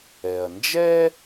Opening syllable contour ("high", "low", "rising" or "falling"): low